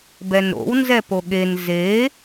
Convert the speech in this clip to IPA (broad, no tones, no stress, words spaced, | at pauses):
bɛnɾo̰w nzɛpoɠen ze